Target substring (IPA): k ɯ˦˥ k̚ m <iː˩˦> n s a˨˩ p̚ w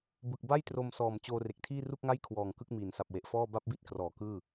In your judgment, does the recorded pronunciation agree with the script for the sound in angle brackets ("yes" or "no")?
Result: yes